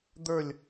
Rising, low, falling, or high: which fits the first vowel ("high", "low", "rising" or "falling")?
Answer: falling